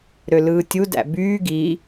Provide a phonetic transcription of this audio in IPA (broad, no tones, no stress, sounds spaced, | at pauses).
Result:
ɾ ø l ɯː tʲ u d æ̰ b yː ɡ i